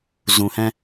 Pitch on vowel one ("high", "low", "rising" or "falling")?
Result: low